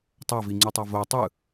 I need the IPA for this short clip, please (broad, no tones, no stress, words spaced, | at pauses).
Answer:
tˤaviŋ͡ǀutˤa vo tˤɯ